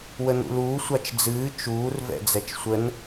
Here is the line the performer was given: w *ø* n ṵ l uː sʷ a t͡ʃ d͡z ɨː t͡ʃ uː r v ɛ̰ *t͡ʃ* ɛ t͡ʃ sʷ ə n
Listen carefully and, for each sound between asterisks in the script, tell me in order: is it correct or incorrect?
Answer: incorrect: ə, incorrect: d͡z

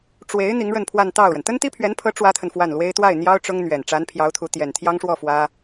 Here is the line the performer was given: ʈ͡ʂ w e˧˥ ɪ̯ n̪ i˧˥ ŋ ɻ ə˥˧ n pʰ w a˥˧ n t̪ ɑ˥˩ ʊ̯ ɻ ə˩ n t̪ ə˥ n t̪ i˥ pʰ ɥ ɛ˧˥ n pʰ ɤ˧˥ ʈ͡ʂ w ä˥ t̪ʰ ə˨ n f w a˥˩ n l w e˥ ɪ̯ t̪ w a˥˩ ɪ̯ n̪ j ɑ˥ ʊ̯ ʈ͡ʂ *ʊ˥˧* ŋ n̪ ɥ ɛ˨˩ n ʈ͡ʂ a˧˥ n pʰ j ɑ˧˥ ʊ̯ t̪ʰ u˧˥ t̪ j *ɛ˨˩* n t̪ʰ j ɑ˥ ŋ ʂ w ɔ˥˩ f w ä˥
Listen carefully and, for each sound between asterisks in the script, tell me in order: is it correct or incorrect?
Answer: incorrect: ʊ˥, correct

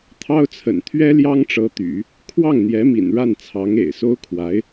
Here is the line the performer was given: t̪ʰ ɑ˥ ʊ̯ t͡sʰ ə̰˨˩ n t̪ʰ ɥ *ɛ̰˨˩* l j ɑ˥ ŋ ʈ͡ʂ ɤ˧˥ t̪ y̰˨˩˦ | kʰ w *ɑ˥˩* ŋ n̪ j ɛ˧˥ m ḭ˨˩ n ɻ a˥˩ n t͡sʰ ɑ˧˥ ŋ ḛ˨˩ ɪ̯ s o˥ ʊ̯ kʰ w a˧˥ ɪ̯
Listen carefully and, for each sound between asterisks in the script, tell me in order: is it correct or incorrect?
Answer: incorrect: ɛ˥, correct

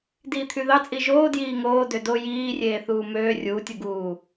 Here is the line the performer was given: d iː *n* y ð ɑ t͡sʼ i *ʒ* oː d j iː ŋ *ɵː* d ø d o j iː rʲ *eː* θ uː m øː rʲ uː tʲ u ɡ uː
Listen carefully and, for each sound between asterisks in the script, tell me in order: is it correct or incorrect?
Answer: incorrect: t̪ʰ, correct, incorrect: oː, correct

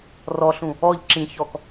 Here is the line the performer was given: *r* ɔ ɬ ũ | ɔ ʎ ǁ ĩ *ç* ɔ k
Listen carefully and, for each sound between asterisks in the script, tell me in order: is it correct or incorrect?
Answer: correct, correct

